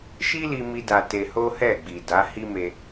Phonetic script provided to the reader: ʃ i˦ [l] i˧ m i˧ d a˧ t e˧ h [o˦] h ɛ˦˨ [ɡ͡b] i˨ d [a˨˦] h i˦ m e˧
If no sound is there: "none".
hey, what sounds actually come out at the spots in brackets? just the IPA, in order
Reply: l, o˦, ɡ͡b, a˨˦

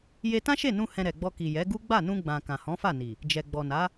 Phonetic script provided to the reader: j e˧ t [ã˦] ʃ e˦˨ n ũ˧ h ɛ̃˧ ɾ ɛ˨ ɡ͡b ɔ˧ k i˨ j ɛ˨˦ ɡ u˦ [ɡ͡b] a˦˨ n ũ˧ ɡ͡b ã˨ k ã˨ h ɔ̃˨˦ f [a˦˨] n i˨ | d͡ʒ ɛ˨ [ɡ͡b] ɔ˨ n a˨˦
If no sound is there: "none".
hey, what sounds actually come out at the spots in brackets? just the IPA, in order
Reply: ã˦, ɡ͡b, a˦˨, ɡ͡b

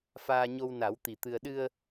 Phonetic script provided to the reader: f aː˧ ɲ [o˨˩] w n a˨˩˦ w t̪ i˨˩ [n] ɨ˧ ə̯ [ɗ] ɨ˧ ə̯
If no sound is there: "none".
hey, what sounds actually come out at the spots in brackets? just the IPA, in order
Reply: o˧, t̪, ɗ

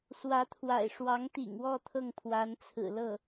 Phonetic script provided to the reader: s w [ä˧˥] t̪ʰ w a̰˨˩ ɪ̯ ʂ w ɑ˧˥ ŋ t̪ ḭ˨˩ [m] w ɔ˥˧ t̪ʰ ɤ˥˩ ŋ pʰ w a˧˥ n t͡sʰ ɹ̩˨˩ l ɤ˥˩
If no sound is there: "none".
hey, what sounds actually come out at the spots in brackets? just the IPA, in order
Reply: ä˧˥, ŋ

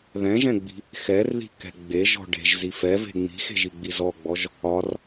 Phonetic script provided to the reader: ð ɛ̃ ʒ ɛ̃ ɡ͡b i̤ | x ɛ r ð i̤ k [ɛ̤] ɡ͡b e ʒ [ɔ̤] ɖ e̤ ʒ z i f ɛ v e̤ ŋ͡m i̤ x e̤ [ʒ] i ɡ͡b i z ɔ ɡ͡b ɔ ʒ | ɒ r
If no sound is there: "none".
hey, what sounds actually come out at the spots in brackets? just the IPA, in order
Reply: ɛ̤, ɔ̤, ʒ

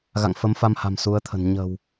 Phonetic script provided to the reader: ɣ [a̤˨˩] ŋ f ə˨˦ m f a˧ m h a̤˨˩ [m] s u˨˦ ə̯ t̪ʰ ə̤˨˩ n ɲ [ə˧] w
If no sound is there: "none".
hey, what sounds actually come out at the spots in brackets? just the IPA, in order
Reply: a̰˧˨, m, ə̤˨˩

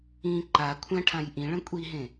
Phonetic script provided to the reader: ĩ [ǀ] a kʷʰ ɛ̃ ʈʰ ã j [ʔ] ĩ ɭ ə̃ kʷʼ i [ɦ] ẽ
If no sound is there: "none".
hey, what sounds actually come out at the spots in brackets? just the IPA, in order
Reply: ǃ, ʔ, ɦ

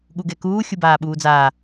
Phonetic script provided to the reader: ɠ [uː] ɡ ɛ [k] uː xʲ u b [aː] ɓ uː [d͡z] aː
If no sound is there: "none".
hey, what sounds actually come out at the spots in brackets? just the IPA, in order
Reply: u, k, aː, d͡z

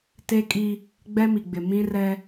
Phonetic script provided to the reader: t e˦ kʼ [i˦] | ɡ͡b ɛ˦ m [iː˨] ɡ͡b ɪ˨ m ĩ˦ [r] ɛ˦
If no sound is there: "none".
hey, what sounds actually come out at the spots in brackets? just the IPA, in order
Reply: i˦, i˨, r

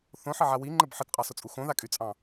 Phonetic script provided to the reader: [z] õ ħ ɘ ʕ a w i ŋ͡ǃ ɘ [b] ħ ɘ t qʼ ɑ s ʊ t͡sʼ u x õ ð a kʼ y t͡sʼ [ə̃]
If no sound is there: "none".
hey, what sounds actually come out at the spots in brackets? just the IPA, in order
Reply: θ, b, ɑ̃

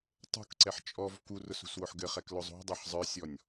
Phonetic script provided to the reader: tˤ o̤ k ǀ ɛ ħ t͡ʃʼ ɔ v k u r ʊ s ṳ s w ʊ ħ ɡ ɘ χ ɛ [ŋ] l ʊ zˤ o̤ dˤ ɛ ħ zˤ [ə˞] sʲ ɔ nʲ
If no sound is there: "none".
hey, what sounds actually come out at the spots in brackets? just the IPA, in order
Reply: k, ə˞

